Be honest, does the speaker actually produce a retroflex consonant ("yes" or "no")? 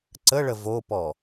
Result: yes